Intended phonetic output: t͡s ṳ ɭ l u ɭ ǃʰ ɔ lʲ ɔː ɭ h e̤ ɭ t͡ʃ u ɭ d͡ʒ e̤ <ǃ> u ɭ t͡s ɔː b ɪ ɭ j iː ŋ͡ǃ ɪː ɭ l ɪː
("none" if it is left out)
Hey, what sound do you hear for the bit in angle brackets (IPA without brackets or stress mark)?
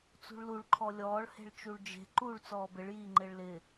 ǃ